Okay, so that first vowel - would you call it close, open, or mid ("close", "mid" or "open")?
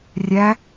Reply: open